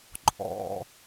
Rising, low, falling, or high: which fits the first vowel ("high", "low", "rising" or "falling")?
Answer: low